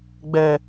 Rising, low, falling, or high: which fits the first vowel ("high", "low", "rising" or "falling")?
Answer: low